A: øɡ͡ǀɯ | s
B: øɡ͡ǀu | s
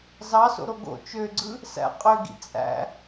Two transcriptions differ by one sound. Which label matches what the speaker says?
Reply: A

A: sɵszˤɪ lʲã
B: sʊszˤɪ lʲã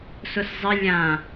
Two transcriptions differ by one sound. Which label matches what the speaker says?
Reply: B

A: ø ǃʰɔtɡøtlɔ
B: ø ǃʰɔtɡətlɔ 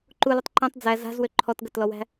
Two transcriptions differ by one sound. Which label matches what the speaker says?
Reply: B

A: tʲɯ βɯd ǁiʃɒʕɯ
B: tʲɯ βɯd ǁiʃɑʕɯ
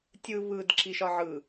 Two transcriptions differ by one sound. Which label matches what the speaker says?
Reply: A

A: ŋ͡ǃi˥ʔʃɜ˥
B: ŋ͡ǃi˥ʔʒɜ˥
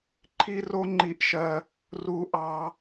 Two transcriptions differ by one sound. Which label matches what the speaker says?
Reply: A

